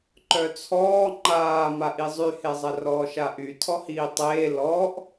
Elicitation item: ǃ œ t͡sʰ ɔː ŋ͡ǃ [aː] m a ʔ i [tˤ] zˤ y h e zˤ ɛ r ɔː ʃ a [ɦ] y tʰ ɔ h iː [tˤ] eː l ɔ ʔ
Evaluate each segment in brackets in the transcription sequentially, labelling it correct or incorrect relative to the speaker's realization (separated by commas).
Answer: correct, incorrect, incorrect, correct